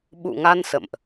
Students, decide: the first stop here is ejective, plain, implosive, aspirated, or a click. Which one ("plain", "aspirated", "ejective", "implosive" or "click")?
implosive